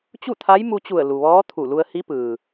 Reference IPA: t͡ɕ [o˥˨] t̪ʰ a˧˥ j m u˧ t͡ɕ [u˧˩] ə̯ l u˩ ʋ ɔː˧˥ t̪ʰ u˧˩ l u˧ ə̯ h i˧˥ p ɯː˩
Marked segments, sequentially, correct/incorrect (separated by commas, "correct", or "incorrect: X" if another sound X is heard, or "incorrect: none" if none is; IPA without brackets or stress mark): incorrect: u˥˨, correct